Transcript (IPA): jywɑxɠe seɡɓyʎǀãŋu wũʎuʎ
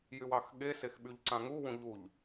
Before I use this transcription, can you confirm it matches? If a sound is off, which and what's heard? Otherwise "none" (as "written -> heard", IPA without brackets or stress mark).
ɡ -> x